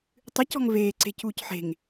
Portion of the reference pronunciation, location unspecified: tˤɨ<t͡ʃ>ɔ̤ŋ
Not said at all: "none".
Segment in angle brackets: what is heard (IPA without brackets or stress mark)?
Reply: c